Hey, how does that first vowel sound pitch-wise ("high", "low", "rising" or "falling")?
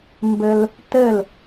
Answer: high